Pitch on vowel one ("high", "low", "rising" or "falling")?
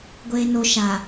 low